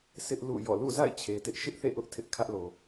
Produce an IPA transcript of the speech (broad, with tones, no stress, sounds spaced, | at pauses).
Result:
sʰ ɪ˦ ʔ l ṵ˦˨ j ɔ̰˦˨ l ṵ˦˨ z a̰˦˨ ɪ̯ t͡ɕʰ e˨ t ɪ˦ ʔ ʃ ɪ˦ ʔ θ ḛ˦˨ ʔ ʊ˦ ʔ tʰ ɪ˦ ʔ kʰ ä˦ ʔ l o˨